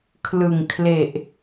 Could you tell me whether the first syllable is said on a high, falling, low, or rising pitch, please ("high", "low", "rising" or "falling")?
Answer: low